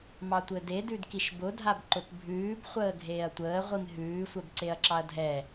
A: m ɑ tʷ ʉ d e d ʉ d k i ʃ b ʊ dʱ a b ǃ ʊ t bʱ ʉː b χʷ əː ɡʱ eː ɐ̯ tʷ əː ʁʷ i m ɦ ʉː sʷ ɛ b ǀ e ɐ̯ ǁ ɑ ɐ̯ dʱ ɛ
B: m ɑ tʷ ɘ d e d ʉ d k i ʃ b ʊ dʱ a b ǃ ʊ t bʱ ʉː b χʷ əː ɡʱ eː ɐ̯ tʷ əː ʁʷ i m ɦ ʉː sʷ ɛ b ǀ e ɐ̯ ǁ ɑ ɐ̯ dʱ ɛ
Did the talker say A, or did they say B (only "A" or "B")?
B